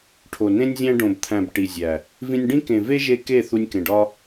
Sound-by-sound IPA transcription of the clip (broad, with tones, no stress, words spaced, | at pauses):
ʈʰo˨nẽ˦nʲzʲæ̃˦ ɖõ˨bt̪ʰæ̃˨b ʈi˨zʲæ˨ | vĩ˧nʲɖĩ˦ kẽ˨ve˦ʒe˧ ke˦˨ θu˧nʲkẽ˨ɖɒ˦